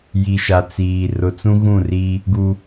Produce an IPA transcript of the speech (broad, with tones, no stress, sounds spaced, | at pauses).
j i˨ ʃ a˨ t͡s iː˨ r ʊ˨ t͡s ũ˦ ɣ ũ˦˨ r iː˦ | ɡ u˦